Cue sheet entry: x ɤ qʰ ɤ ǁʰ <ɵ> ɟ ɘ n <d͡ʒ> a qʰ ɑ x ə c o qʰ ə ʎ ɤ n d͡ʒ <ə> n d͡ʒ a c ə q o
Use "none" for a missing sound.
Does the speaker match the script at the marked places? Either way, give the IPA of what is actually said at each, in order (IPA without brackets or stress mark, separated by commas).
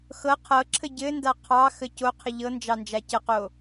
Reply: ə, d, ɑ